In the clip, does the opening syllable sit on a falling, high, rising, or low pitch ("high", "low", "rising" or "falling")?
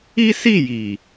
high